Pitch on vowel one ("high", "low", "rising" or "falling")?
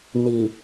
low